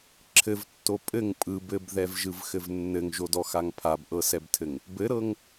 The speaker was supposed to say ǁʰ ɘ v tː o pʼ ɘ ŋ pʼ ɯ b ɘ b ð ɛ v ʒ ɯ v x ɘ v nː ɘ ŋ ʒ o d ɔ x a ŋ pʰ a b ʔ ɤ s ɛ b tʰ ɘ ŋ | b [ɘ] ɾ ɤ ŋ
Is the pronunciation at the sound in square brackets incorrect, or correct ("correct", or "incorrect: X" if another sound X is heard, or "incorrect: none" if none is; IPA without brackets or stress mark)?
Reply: correct